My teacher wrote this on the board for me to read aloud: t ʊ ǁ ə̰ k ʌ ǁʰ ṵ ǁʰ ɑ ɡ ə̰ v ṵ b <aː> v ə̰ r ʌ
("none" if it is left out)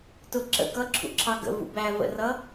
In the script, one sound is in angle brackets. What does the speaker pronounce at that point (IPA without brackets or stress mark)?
æː